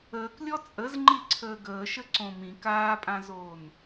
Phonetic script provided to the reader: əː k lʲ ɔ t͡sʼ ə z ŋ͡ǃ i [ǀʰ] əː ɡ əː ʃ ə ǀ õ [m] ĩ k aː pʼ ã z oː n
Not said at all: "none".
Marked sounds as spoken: ǀʰ, m

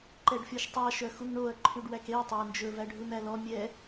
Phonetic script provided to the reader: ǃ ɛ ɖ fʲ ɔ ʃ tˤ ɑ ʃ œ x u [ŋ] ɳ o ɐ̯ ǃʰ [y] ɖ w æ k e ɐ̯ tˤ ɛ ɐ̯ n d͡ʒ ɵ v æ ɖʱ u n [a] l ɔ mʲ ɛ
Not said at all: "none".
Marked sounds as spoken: ŋ, y, æ

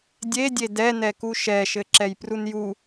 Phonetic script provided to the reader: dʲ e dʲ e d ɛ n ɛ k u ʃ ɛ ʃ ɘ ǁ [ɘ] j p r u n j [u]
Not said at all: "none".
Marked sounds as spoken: ɛ, u

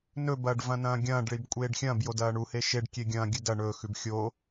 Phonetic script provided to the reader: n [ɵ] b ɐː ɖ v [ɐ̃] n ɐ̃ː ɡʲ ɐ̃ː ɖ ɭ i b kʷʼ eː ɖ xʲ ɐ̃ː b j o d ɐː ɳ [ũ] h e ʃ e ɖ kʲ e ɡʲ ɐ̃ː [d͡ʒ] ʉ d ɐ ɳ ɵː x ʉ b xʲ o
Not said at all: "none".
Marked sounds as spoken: ɵ, ɐ̃, u, ɡʲ

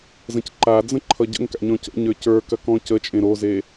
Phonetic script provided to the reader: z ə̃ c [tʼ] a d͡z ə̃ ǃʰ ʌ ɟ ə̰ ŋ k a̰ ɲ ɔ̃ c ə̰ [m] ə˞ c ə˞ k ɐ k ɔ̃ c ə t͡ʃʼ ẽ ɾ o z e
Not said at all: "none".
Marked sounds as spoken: ǃ, ɲ

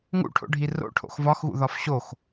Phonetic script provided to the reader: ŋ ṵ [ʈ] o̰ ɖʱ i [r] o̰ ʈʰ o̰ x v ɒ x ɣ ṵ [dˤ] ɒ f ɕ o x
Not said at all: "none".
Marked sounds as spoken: ʈʰ, r, ð

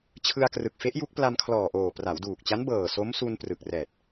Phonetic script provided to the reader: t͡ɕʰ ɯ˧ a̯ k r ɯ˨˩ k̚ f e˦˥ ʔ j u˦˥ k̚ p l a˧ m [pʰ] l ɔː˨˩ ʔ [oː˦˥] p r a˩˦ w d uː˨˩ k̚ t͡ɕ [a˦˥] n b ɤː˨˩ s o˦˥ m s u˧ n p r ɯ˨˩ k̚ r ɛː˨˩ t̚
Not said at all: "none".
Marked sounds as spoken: kʰ, oː˨˩, a˦˥

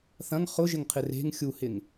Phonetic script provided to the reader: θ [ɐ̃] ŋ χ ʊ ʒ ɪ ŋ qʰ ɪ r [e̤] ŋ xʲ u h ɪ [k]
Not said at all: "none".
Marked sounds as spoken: ɐ̃, e̤, ŋ

